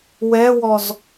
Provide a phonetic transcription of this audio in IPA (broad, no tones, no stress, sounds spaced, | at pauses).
w ɛ w ɔ z